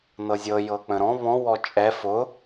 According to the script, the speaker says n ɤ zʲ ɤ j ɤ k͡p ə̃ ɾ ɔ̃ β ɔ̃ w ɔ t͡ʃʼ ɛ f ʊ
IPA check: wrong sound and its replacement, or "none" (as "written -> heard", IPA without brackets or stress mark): none